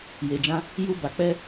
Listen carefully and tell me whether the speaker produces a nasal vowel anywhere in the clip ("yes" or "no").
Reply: yes